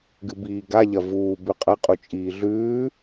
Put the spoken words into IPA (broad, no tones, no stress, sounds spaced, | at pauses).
ɡ ɨ b iː ɡ a ʎ ɐ v uː b ʉ qʼ ɐ qʼ u t͡ʃʼ iː ɮ ʉː